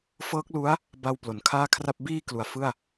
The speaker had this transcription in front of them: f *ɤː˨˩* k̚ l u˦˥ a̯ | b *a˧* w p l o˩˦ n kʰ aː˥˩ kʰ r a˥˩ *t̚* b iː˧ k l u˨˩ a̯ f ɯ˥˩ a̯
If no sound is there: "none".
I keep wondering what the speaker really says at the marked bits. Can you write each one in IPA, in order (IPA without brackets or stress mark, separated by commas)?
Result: ɤː˦˥, a˧, p̚